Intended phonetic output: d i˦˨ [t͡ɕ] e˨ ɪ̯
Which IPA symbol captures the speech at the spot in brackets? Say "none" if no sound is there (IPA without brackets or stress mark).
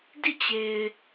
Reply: t͡ɕ